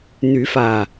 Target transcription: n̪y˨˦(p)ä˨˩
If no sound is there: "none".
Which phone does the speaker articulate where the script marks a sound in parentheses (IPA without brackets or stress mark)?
f